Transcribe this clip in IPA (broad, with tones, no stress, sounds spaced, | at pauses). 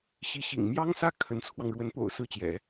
ɕ i˧˥ ɕ ḭ˨˩ ŋ m j ɑ˥ ŋ s ä˥˩ kʰ ə˧˥ n t͡sʰ w ɑ˧ ŋ ɻ w ə˧˥ n p o̰˨˩ ʊ̯ s ɹ̩˥˩ t͡ɕ j ɛ̰˨˩˦